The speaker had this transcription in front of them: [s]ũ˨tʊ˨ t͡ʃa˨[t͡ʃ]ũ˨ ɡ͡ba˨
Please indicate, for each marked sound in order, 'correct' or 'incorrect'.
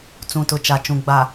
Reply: incorrect: t͡s, correct

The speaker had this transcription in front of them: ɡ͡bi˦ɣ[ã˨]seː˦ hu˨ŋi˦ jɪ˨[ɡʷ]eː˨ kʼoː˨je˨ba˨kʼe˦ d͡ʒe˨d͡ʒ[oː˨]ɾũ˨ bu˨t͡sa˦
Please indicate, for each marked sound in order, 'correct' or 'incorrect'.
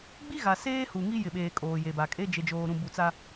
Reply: incorrect: a˨, incorrect: ɓ, correct

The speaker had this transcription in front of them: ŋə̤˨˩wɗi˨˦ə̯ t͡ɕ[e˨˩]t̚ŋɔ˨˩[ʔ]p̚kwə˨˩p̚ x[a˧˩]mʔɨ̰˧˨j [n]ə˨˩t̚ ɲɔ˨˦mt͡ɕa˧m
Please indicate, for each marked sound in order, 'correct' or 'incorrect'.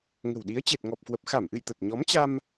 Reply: correct, incorrect: none, correct, incorrect: t̪

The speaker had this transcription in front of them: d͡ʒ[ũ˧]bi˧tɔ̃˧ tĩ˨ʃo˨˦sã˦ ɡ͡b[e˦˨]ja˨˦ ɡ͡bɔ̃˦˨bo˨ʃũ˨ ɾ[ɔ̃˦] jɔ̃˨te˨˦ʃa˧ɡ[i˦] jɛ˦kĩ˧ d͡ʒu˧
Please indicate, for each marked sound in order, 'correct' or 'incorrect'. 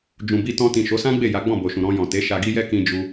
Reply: incorrect: ũ˨, correct, incorrect: ɔ̃˧, correct

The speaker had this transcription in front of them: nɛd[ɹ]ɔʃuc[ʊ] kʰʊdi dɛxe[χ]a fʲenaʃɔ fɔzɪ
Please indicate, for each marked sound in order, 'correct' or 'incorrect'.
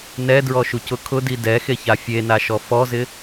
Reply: correct, correct, incorrect: ç

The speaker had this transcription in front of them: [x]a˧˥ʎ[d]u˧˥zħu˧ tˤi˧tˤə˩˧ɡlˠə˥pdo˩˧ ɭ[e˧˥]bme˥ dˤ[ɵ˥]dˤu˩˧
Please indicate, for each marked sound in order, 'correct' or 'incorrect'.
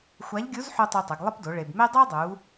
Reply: incorrect: xʷ, incorrect: ɡʲ, incorrect: e˩, incorrect: o˥

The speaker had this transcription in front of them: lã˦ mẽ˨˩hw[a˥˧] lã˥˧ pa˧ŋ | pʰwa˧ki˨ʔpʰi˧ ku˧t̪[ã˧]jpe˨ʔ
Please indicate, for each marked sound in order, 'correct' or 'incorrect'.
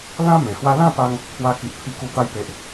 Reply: incorrect: a˦, incorrect: a˧

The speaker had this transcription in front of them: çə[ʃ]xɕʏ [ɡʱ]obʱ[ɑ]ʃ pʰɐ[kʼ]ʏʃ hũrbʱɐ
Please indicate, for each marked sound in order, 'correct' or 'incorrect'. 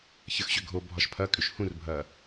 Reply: incorrect: none, correct, incorrect: ɒ, correct

